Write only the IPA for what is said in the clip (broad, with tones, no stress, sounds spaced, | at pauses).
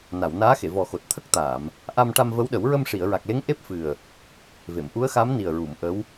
n a˨˩˨ w n aː˧˥ x e˨˩˨ v ɔ˨˩ x o˨˩ t̚ t̪ʰ ə˦˥ k̚ t̪ aː˨˩˨ m | ʔ a˧ m ʈ a˧ m v ə˧˥ w ɗ ə˨˩˦ w ɹ ə˧ m ʂ i˨˩˨ ə̯ ɹ a˨˩ k̚ l e˧˥ ŋ ʔ e˦˥ p̚ f ɨ˨˩ ə̯ | v e˨˩˨ m ʔ u˧˥ ə̯ x a˧˥ m n i˨˩ ə̯ ɹ u˨˩˨ m ʔ ə˧˥ w